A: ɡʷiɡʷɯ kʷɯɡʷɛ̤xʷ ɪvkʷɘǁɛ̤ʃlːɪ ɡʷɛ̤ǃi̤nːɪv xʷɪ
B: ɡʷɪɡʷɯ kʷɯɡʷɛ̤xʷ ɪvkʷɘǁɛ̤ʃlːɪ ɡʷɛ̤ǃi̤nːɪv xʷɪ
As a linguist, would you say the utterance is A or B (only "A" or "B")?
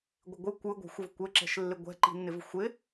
B